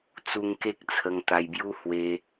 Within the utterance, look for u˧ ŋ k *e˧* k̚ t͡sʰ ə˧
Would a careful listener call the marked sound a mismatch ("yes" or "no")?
yes